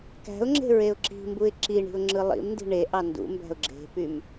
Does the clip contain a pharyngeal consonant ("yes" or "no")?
no